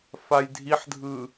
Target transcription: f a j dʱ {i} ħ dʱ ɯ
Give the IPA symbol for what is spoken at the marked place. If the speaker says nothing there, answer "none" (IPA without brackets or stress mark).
i